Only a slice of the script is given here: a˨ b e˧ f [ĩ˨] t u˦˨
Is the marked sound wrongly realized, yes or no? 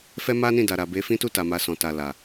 yes